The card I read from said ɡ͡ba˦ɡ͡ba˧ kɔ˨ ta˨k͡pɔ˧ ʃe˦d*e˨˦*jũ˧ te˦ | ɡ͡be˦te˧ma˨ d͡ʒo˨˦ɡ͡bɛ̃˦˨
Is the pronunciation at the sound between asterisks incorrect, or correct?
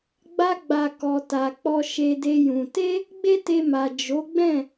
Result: incorrect